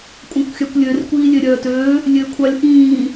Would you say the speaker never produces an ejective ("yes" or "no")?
no